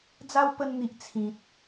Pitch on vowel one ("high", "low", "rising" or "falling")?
high